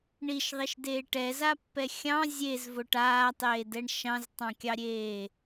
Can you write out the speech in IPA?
ɳ i ʃ ðˤ i ʃ d eː ʈ ɛ z a pː ɛ xʲ ɑ̃ zʲ e z v o ʈ aː tˤ eː d ɛ ɳ ʃ ɑ̃ z tˤ ɑ̃ kʲ ɑ ɾʲ eː

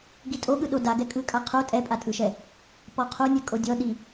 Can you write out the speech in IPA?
ɡ i tʼ o ɠ ɯ ɗ o d a ɡ ɛ kʼ ɯ kʼ a qʰ o tʼ ɛ pʼ a tʼ ɯ ʃ ɛ | p ɔ qʰ o nʲ ɛ kʼ o dʲ ɔ ɗ i

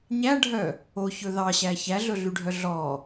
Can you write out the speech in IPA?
ɲ æ ɖʱ œ | o ç ɵ ð ɑ ɕ æ ç æ ɮ ɵ ɮ y ɖʱ œ ɮ ɔ

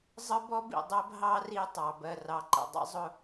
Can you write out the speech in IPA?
zˤ ə˦ b ɔ˦ b ḭ˨ dˤ ɜ˦ b ɦ ɑ˦ r i˦ tˤ ɑ˨ b ɜ˨ r ɑ˨ ǃ ə̰˨ dˤ ə̰˦ zˤ ʊ˦

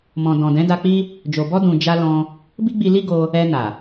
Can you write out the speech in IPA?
m ɔ̃˨ d ɔ̃˨ d ɛ̃˨˦ d a˧ k͡p i˦ | d͡ʒ o˨ b ɔ˧ d ũ˨ d͡ʒ a˧ l ɔ̃˧ | b i˦ ɡ͡b i˧ l i˦ ɡ o˧ | ɛ˧ n a˨

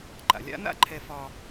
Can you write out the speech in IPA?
ǃ a̰˩ lʲ a̰˧˥ n a̰˥ ǃʰ ɛ˧ f ɒ˧

